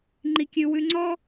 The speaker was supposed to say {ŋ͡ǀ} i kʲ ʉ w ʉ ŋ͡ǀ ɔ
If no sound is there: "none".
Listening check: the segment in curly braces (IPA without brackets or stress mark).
ŋ͡ǃ